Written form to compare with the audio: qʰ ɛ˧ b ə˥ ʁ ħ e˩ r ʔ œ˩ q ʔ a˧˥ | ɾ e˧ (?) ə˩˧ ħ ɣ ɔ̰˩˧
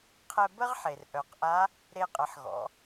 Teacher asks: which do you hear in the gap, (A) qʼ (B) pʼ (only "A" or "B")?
A